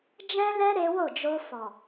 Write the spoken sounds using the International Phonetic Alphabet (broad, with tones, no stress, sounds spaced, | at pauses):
d͡ʒ ɛ̃˦ l ɛ˦ ɾ e˦ w o˦˨ d͡ʒ o˧ f ɔ˨